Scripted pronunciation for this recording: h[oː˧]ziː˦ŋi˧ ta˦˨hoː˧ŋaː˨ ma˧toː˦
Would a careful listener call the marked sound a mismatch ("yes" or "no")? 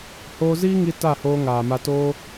no